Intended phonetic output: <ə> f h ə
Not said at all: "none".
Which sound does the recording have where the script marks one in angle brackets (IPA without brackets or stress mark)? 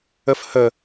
ə